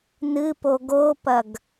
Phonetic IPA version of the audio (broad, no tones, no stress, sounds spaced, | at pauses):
n ɨ p o ɡ o p ɐ ɡ